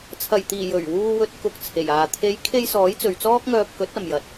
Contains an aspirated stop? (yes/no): yes